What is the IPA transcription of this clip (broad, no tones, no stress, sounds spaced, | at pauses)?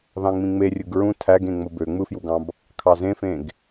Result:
ð ɑ̃ ŋ͡m ĩ ŋ͡m e rʲ ɯ ɡ ɹ ũ tʰ æ ɡ ẽ ŋ͡m o b ø ŋ͡m ɯ f j u ɡ ɑ̃ b | kʰ ɑ z ẽ f ẽ ɡ